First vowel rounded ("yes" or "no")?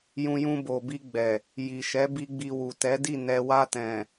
yes